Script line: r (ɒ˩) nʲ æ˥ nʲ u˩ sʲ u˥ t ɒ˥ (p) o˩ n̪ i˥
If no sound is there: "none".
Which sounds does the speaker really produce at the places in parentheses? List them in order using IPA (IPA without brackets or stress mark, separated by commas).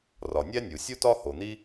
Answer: ɒ˩, h